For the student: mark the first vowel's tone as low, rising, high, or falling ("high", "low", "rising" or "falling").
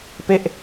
falling